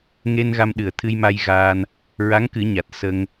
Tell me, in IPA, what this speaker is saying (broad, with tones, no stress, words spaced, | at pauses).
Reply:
ŋe˧n ɣa˧mɗɨ˨˩ə̯t̪ʰɨ˧jma˧j ɣaː˧n | ɹa˧˥ŋkɨ˨˩˦ɲa˨˩t̚ sə˧ŋ